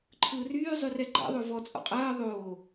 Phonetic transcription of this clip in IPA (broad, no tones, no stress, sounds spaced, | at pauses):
ǃʰ ɯː r yː zˤ y r ɛ ɡ͡ǃ a̰ ðˤ o v ɔ t͡sʼ ɔ̰ qʼ ɜː ðˤ oː